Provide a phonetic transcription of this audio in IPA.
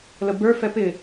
l ə b ə˞ f ɛ p ɪ

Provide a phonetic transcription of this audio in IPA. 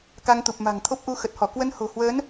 k a˧ ŋ t̪ u˨˩ p̚ m a̤˨˩ ŋ t̪ʰ o˦˥ p̚ ʔ u˧ x ə˨˩ t̚ h ɔ˧˩ k w ə˧ n h o̤˨˩ h w əː˨˦ n

